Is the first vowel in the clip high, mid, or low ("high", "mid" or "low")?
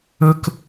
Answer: mid